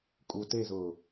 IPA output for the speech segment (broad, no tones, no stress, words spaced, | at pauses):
kʼu tezʊː